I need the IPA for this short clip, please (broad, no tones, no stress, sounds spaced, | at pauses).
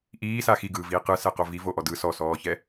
ʔ iː s a x i ɡ ɯː v iː q ɯ s ɛ q o v i v o ʔ ɔ d ɯ s ɔ s ɔː ç ɛ